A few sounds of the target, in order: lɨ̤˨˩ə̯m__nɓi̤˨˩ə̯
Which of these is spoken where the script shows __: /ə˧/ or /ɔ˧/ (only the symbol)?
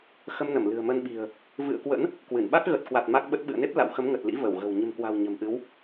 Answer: ə˧